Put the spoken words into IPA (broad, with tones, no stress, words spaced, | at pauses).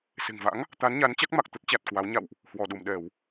se̤˨˩ŋva̰˧˥ŋ | t̪a˨˦nɲa˨˦nt͡ɕa˦˥k̚ ma˨˩k̚t̪ə˦˥t̚t͡ɕa˨˩t̚ kwa˨˦w ɲa̰˧˨wʔ | hwɔ˧˩ɗu˧˩mɗɛ˧˩˨w